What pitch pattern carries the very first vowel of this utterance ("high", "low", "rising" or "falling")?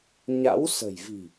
rising